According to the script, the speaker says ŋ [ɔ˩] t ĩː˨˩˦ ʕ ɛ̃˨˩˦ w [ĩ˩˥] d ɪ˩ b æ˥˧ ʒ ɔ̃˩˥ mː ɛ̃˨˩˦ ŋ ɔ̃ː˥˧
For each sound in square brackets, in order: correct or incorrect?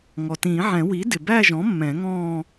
correct, incorrect

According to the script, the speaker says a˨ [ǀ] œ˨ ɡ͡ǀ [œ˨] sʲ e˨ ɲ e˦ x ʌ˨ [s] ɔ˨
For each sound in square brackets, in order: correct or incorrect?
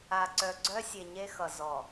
correct, incorrect, incorrect

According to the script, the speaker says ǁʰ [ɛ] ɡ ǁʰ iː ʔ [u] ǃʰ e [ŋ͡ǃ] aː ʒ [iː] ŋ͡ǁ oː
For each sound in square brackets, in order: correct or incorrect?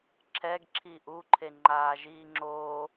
correct, correct, correct, correct

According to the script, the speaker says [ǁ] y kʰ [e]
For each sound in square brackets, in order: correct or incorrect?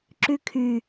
correct, incorrect

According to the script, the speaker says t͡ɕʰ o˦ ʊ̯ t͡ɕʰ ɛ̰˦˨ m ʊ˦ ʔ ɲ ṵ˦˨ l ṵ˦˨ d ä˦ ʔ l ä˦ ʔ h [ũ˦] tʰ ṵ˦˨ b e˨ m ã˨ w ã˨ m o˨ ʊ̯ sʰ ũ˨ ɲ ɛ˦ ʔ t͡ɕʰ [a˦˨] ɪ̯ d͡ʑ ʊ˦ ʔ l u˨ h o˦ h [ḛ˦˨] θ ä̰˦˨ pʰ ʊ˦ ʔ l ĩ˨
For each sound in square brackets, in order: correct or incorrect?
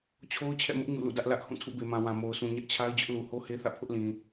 incorrect, incorrect, incorrect

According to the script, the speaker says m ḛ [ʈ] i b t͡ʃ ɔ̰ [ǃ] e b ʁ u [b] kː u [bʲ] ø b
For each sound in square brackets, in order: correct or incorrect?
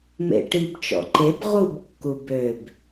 correct, correct, correct, incorrect

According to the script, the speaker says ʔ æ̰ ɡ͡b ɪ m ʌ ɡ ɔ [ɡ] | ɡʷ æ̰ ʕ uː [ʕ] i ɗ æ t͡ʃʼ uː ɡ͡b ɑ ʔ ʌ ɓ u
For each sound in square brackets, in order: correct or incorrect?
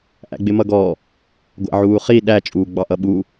incorrect, incorrect

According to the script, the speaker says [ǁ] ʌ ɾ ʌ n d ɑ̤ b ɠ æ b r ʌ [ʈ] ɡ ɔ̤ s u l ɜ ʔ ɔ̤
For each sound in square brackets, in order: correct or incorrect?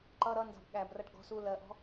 incorrect, correct

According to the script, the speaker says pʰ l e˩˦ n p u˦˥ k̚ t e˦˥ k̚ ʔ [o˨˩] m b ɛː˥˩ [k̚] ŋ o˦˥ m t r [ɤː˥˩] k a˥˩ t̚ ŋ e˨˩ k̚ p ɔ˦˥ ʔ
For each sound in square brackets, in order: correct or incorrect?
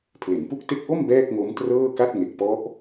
incorrect, correct, correct

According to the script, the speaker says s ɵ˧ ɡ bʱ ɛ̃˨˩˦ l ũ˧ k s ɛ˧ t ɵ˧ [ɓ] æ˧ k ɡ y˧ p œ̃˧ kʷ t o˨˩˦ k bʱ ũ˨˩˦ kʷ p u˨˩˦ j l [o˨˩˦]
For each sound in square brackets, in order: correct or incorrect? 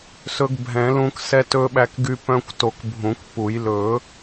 correct, incorrect

